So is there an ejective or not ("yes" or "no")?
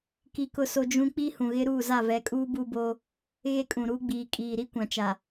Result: yes